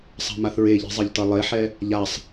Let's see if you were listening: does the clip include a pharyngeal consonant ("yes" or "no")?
yes